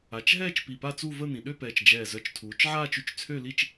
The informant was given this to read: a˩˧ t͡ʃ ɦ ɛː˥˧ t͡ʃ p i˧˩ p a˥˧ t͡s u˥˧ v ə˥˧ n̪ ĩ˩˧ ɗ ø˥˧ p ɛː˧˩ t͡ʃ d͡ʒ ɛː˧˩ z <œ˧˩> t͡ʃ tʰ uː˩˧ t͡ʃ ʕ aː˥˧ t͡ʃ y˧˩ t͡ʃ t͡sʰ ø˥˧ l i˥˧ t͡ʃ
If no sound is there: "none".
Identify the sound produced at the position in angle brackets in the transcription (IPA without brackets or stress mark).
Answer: œ˧˩